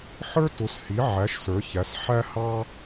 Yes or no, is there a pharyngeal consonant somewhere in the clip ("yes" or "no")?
yes